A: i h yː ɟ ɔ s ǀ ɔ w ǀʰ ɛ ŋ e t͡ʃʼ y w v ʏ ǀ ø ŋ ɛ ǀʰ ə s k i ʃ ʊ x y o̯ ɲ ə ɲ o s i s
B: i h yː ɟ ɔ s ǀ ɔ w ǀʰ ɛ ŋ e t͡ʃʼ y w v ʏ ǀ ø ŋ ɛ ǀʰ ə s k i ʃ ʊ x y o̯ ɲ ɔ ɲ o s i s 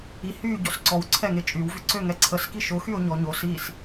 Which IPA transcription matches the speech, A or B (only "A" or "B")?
B